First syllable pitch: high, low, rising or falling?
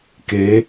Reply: rising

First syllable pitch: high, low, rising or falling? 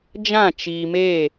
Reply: falling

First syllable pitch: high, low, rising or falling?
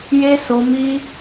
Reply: high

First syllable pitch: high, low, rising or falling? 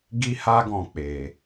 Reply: high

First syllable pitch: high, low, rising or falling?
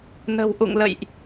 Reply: low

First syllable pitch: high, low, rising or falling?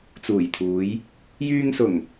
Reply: low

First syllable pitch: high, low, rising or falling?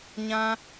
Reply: high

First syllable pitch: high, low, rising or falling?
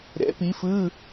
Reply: rising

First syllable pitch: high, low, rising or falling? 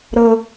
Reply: high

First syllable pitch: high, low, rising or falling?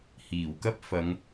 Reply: low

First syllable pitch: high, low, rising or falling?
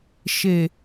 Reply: low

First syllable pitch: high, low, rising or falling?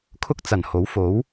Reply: high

